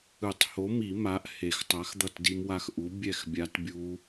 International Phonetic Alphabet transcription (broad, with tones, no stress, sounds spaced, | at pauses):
ɯ˨˩˦ tˤ h o˨˥ m i˨˩˦ m a˨˥ ʔ h e˨˩˦ x tˤ a˨˥ x d̪ ʌ˥˨ t d i˦˥ m w a˦˥ x ʔ u˨˥ bʲ ɛ˥˨ x bʲ a˦˥ t bʲ u˦˥